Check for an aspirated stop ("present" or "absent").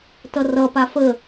absent